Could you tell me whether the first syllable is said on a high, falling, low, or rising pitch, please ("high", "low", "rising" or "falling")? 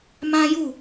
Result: high